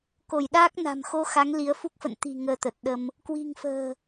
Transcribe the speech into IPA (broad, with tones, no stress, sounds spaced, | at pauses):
k o˧˩ j ɗ aː˦˥ k̚ n a̤˨˩ m x o˧ x a˨˦ ŋ l i˨˦ ə̯ f u˦˥ k̚ f ə̰˧˨ n t̪ i̤˨˩ ŋ əː˧ t̪ ə˨˩ t̚ ɗ ə˧ m | k w i̤˨˩ ŋ f ə̤ː˨˩